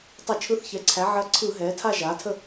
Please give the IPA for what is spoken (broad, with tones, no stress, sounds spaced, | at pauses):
tˤ ə˧˩˧ t͡ʃʰ ɯ˧˥ θ ç ɛ˩˥ ǀʰ æ˩˥ ʕ ɐ˧˥ ǀʰ ɯ˧˩˧ ɦ ɛː˩˥ tʰ a˥˧ ʒ aː˩˥ tʰ ə˥˧